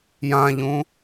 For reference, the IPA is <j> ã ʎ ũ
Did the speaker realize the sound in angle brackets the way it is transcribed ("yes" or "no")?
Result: yes